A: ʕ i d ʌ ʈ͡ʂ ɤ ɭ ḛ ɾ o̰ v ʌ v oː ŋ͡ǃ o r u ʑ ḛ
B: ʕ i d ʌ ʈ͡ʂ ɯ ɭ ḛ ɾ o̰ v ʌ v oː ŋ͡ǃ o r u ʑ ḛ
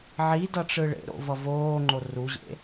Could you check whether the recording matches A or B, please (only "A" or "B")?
B